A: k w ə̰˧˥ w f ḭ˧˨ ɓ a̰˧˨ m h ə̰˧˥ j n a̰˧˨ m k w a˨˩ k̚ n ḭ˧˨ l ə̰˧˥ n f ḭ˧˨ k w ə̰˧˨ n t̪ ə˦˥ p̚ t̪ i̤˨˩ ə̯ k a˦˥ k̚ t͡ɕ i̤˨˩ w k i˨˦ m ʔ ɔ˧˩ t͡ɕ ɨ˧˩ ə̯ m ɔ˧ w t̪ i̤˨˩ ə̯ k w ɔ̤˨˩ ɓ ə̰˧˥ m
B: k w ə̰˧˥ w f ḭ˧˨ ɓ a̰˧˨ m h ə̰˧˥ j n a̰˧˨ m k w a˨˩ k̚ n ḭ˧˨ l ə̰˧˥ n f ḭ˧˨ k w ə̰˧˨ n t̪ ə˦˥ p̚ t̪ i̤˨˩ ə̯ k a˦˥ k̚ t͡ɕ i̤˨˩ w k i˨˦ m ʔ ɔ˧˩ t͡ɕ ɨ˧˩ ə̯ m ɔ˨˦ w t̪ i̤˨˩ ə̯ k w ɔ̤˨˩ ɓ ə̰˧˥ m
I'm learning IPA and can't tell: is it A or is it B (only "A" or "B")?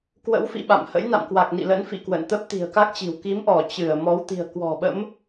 B